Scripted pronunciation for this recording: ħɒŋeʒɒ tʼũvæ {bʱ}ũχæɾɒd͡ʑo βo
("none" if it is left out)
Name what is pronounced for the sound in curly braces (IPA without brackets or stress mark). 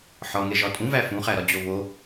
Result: f